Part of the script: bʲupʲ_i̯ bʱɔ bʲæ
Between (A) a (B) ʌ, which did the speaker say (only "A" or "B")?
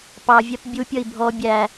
B